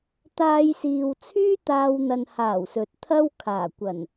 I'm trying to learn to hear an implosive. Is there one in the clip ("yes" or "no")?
no